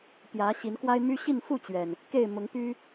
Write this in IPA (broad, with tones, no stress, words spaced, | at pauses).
pjä˨˦ɕi˨˦nkwa˦ɪ̯my˦ ɕi˥˨nfu˥˨t͡ɕɥɛ˩n | ke˥˨ɪ̯ mʊ˨˦ŋpy˦